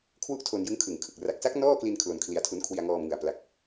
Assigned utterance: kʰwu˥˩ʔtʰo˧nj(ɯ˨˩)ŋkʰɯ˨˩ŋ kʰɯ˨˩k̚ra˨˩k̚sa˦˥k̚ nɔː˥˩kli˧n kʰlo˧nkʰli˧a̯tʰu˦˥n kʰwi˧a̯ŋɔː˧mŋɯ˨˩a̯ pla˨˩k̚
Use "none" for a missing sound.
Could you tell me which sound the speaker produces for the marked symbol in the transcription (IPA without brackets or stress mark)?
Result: ɯ˦˥